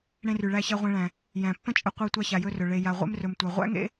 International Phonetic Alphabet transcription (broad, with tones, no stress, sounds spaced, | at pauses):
ɽ ẽ˧ r y˩ ɭ æ˧ ç æ˧ ʁʷ ẽ˧ ɭ æ̃˩ | j æ̃˩ pː ə̃˥ t͡ʃʼ ə˧ qʷ æ˧ tʷ a˧ ç a˩ j ɵ˧ r ɵ˩ ɭ e˩ j a˩ ʁʷ ḛ˧ m r ɵ˩ m tʷ æ˩ ʁʷ æ̰˥ ŋ ḛ˥